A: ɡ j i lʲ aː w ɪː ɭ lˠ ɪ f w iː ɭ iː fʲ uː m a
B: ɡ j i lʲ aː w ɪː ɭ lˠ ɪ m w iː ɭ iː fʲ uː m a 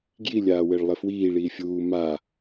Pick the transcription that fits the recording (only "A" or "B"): A